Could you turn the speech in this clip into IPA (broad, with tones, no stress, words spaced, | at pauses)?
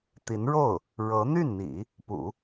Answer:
t̪i˧˥nɻo˥˩ʊ̯ | ɻɤ˧˥ n̪y˥˩nn̪ḭ˨˩˦ | pṵ˨˩˦